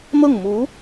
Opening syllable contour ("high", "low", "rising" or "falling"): falling